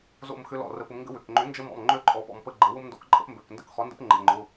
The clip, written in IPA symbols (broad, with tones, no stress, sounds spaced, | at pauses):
z o̰˥˧ m x ʏ˦˥ l ɔ̰˩˧˩ r ə˨˥ p ʊ˨˥ m ŋ ɡ ə̰˦˥ w ʏ˩˧˩ k ŋ͡ǃ ʏ˨˥ n d͡ʒ ə˦˥ m ɔ̰˩˧˩ m ŋ͡ǃ ø˦˥ ǃʼ ɔ˨˥ p ɔ̰˩˧˩ m p ə˥˧ ɡ͡ǃ ə˨˥ w ʊ˦˥ m n d ɔ̰˨˥ k ǃʼ ə̰˨˥ p m b ø˩˧˩ k n d ə̰˥˧ k χ ɔ˨˥ n d ə̰˦˥ p ŋ͡ǃ ə̰˩˧˩ ŋ͡ǃ ʊ˩˧˩